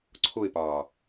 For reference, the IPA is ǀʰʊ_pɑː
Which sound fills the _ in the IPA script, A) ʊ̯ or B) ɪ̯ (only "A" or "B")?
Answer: B